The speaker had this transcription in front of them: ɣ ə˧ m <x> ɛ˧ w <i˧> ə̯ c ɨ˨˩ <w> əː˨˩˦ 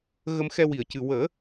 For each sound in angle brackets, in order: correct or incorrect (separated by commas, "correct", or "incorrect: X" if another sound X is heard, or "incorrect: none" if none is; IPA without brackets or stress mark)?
correct, incorrect: i˨˩˨, correct